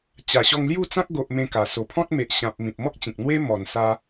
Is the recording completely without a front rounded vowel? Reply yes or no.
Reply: yes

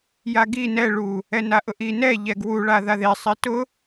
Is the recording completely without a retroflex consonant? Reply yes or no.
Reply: no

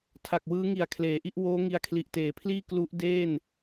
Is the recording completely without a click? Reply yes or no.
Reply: yes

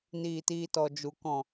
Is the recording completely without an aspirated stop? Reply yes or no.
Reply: yes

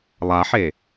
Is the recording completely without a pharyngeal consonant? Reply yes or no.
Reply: no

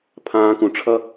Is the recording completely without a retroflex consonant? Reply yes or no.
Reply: no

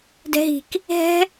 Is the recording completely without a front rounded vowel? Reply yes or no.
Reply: yes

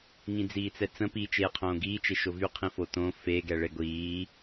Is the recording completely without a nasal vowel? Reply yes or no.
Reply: no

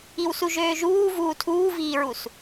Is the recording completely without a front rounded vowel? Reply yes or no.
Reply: no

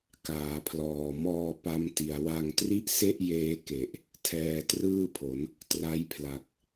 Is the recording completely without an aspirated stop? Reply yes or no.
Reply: no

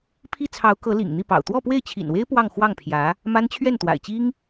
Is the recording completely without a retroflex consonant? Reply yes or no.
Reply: yes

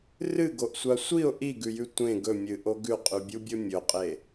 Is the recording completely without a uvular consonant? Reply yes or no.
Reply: no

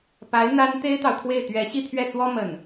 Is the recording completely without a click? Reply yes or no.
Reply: yes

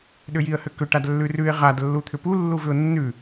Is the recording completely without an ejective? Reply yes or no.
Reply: yes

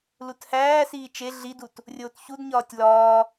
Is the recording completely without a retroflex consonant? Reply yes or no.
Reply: yes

